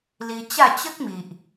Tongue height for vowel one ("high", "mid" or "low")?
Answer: high